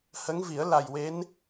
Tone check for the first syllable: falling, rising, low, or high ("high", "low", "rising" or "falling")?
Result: rising